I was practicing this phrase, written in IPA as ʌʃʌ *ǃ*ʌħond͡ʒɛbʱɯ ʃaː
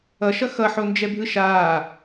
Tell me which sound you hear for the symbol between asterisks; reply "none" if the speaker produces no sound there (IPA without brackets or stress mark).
x